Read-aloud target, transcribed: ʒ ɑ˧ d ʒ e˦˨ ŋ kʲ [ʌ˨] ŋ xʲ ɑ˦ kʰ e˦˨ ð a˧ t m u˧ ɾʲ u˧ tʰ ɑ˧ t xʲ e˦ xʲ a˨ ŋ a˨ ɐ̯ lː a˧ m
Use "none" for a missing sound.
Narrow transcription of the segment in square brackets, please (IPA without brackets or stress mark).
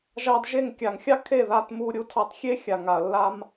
a˨